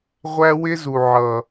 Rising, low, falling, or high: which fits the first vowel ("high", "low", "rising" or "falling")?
high